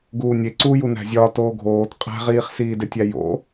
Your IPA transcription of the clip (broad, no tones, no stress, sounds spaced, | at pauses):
ɡ uː nʲ e ǀ uː j u n æ̤ zʲ ɒː t oː ɡʱ oː t qʼ æ̤ ʁ iː χ s iː d e tʲ æ j o̰